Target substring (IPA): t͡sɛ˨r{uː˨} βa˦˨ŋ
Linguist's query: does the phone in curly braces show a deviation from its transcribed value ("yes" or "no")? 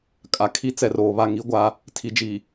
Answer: yes